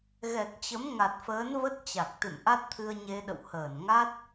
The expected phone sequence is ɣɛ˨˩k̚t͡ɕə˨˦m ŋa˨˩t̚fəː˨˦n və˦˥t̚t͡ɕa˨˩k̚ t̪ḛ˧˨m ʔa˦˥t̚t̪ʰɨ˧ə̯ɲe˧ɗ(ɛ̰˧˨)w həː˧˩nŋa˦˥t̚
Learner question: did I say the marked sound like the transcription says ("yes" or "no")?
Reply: no